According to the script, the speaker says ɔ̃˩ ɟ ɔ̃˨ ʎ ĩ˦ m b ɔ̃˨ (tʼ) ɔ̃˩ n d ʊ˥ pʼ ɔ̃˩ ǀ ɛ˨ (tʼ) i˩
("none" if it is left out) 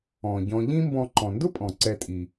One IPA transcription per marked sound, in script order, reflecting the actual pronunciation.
ǃ, tʼ

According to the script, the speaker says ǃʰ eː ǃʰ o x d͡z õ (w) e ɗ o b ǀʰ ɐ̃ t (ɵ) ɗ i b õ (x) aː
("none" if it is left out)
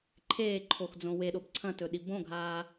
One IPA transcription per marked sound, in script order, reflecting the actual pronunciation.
w, ɵ, ɡʱ

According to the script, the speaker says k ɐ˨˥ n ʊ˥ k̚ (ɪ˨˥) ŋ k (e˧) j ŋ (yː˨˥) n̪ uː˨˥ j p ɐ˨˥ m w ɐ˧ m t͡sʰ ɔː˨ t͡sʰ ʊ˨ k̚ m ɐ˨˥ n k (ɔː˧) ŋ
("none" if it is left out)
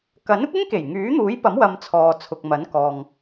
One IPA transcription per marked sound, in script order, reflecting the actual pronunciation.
ɪ˥, e˨˩, yː˨˥, ɔː˨

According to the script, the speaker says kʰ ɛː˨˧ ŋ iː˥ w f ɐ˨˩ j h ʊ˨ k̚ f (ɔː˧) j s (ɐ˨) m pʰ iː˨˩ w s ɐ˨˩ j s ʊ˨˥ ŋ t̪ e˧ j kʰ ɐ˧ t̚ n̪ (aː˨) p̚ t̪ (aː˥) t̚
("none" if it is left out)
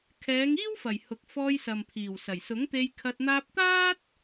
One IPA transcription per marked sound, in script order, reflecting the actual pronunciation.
ɔː˧, ɐ˨, aː˧, aː˥

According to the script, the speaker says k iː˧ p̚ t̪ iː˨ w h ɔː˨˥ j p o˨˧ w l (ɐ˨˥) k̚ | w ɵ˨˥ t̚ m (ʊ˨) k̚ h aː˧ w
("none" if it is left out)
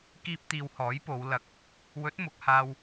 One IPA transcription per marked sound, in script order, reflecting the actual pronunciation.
ɐ˨˥, ʊ˨

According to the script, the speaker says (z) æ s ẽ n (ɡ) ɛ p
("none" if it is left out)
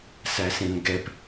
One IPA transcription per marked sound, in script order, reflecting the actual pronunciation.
s, ɡ

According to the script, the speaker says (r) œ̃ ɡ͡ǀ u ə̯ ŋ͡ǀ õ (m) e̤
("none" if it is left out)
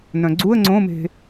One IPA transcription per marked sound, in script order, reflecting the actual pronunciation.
n, m

